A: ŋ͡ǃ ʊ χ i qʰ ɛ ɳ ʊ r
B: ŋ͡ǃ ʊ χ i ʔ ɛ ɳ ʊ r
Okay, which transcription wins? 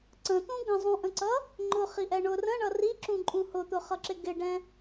B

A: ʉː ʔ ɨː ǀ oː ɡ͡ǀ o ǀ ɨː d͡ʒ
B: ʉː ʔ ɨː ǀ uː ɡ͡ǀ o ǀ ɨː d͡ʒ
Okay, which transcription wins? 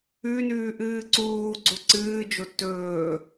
B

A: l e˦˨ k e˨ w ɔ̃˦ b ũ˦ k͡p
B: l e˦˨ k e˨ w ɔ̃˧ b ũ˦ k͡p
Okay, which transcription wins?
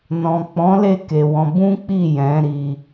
B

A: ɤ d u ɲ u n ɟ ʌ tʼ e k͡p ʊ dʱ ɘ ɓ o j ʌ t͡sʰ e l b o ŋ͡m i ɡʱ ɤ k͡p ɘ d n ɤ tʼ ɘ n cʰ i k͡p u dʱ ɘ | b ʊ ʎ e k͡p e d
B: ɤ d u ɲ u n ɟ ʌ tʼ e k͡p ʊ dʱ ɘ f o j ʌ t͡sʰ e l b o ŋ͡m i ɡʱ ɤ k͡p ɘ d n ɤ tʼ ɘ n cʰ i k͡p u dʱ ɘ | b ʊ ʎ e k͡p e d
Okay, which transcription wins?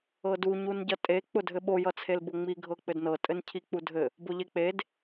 A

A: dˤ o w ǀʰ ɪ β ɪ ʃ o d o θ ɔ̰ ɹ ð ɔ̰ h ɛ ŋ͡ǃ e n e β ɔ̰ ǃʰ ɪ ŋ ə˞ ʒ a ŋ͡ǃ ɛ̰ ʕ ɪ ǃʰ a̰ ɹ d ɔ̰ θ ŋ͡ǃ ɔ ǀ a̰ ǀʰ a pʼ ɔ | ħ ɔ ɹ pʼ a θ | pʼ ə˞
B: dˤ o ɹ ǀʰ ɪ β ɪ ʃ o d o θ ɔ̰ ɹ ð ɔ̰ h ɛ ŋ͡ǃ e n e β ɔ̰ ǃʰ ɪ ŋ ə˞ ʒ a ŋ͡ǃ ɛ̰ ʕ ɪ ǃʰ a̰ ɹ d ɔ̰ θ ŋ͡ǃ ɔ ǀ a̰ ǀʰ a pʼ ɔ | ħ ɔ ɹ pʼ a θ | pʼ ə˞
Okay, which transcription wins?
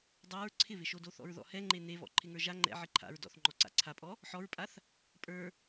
B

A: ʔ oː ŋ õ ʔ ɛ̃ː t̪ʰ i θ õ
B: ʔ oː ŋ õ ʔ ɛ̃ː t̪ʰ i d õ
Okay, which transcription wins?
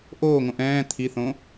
A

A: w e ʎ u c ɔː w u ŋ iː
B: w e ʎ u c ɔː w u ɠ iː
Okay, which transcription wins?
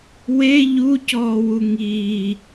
A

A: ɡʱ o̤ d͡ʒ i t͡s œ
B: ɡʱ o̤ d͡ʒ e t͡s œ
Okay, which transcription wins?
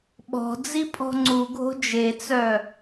B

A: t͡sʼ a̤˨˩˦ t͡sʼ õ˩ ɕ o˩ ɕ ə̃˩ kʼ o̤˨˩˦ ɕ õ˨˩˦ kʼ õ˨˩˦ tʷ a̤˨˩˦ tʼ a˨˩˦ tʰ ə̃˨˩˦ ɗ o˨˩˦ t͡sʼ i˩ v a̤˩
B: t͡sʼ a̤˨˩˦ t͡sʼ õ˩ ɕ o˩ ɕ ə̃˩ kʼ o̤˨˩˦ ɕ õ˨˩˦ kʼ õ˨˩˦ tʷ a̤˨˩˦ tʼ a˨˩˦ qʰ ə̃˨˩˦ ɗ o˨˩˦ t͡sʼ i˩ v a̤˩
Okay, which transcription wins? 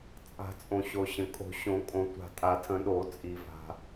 A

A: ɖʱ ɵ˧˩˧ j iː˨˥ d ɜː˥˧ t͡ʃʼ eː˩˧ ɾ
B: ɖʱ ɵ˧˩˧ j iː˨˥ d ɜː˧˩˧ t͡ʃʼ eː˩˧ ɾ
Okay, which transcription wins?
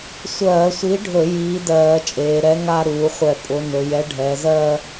B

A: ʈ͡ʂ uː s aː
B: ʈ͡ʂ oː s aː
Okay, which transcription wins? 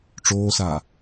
B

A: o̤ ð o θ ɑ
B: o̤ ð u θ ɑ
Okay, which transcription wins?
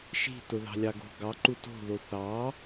A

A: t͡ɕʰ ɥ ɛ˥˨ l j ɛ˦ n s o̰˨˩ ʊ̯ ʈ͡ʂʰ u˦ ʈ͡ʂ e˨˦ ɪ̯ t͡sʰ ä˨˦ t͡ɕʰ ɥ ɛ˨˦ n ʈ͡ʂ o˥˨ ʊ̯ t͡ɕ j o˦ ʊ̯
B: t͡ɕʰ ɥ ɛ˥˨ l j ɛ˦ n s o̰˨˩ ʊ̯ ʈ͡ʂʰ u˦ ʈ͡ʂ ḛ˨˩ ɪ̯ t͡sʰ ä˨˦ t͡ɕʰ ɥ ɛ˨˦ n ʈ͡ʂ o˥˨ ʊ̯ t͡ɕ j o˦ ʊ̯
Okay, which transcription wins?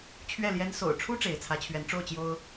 A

